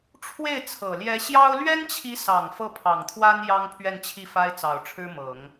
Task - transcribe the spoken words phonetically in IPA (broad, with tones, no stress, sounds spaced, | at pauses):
ʈ͡ʂʰ w e˥˩ ɪ̯ t͡sʰ ɤ˨˩ l j ɛ˧˥ ɕ j ɑ˥ ʊ̯ l ɥ ɛ˥ n t͡ɕʰ i˧˥ s ɑ˨˩ ŋ f ɤ˥˩ pʰ ɑ˨˩ ŋ t̪ʰ w a˥ n j ɑ˥ ŋ pʰ ɥ ɛ˥˧ n t͡ɕʰ i˥˩ f a˥ ɪ̯ t͡s ɑ˨˩ ʊ̯ ʈ͡ʂʰ ɻ̩˥ m ɤ˨˩˦ ŋ